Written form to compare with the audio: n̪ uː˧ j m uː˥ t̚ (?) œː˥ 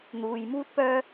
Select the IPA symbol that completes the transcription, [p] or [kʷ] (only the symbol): p